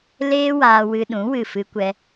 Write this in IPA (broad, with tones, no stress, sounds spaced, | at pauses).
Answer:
l eː˦ w aː˧ w ɨ˧ ɗ ũ˨˦ w ɨ˦˨ f ɨ˦ kʷ ɛ˦